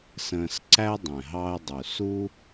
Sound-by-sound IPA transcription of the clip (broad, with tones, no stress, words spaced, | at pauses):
sə̃ː˧s ǀæ˦dˤɛ̃˨ ɦɑ˧ə̯dˤu˨ su˦